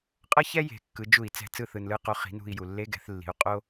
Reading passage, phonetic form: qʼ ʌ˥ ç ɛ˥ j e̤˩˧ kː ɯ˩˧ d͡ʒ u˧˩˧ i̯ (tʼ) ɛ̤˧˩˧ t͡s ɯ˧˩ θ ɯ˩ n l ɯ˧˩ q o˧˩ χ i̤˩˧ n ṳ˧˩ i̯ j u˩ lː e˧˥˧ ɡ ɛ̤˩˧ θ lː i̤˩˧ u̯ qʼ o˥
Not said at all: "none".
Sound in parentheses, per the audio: t͡s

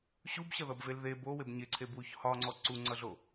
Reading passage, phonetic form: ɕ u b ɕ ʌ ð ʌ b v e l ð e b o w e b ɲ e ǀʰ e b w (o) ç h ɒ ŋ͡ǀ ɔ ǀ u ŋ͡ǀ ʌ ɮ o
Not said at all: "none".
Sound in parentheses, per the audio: u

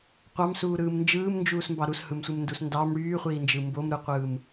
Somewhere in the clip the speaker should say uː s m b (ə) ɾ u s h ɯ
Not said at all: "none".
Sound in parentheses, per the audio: ɑ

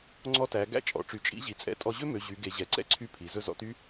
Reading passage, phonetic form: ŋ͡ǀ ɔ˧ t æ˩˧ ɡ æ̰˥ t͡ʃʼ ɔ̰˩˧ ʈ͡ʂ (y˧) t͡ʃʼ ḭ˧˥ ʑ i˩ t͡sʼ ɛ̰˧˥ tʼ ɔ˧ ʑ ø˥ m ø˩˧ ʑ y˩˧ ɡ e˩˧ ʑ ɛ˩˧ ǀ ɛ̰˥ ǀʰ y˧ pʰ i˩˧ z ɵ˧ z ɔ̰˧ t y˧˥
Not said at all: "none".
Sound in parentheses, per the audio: y˩˧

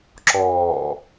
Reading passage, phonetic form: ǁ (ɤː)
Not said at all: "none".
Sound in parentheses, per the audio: ɔː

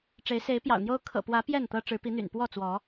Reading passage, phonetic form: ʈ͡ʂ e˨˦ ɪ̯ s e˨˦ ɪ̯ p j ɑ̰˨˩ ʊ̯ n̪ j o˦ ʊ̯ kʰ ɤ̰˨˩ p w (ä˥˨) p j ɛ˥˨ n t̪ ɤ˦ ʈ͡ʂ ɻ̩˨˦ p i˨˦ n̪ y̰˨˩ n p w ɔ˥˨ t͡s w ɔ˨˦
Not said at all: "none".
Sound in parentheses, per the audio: ä˨˦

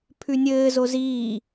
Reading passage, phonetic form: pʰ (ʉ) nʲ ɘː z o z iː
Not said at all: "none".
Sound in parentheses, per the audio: ʉ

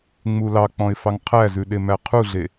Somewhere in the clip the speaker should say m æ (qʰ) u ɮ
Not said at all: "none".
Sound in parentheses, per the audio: qʰ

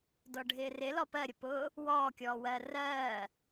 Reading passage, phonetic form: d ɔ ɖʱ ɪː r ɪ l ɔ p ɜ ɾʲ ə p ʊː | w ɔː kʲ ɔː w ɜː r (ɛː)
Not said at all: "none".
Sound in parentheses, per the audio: ɜː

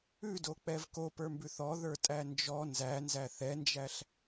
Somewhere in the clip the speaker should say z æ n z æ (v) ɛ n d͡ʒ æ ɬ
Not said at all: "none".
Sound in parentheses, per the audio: θ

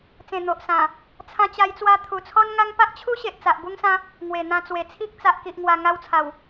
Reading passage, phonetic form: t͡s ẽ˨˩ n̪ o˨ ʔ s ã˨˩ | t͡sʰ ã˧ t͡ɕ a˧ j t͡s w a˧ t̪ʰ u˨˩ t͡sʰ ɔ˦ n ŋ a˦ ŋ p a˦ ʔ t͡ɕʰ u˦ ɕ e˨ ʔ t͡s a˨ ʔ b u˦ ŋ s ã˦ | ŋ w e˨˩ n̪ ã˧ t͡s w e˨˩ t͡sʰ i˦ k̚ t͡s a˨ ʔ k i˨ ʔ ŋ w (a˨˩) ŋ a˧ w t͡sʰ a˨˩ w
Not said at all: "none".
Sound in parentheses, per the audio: a˨˩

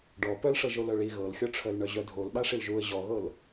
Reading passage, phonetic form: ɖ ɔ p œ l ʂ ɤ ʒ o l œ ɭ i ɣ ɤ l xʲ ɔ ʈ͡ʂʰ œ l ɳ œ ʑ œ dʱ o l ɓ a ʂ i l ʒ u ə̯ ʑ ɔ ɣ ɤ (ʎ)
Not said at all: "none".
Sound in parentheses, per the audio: l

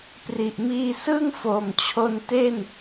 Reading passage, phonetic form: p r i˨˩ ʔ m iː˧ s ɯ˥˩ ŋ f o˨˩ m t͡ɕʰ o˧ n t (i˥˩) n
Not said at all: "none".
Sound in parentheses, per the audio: e˥˩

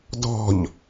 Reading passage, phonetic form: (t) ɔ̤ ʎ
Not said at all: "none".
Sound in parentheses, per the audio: d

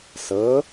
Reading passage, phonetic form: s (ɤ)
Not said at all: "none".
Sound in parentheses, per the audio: ɤ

